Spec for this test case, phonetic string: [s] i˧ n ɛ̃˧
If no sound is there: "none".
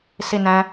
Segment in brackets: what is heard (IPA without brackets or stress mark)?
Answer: s